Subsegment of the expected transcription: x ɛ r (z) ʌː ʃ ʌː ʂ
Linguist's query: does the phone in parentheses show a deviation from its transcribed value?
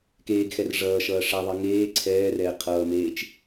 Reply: yes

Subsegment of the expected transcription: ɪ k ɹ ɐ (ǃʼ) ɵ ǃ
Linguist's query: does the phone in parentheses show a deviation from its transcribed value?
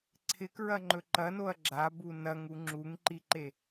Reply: yes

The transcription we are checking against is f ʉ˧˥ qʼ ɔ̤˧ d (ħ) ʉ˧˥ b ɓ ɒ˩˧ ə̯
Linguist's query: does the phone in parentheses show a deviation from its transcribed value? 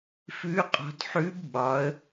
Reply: no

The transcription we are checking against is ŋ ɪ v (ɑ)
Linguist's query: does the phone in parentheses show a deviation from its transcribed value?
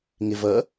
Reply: yes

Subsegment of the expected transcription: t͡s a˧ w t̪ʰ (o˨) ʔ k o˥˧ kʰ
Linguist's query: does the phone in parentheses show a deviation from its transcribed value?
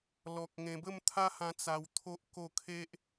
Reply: yes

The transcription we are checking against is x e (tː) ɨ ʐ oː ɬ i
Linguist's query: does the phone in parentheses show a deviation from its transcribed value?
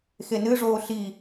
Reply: yes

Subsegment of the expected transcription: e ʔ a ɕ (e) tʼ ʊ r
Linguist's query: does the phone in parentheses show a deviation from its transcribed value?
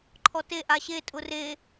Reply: no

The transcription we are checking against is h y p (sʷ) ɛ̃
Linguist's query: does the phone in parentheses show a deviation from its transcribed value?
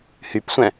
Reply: no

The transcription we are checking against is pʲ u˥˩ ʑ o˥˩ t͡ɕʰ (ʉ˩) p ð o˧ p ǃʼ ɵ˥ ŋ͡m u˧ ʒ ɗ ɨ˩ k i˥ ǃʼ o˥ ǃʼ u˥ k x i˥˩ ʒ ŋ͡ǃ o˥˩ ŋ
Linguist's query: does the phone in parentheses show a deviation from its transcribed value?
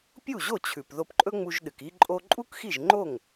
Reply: no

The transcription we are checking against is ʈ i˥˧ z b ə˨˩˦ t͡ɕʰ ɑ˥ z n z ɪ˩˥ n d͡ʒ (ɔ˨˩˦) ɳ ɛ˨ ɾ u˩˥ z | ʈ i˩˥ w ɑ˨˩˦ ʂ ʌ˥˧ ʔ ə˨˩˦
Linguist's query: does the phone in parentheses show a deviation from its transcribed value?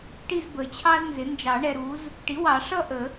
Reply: yes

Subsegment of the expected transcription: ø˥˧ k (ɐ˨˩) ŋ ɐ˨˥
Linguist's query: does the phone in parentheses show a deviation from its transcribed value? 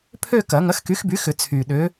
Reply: yes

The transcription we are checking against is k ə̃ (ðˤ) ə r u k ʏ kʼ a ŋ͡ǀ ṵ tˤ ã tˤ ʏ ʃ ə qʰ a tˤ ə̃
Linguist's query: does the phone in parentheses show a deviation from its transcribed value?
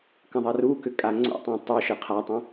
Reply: no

